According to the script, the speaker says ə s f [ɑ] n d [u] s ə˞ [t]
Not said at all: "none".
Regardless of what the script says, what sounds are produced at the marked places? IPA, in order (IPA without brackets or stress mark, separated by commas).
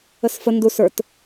ə, u, t